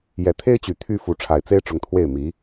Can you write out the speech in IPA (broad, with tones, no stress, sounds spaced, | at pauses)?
j ɛ˨˩ t̪ʰ e˥ ɪ̯ t͡ɕ y˨˩ t̪ʰ y˥˩ f u˧˥ ʈ͡ʂʰ a˨˩ ɪ̯ t͡s e˥ ɪ̯ ʈ͡ʂ ʊ˧˥ ŋ t̪ʰ w e˥˩ ɪ̯ m i˧˥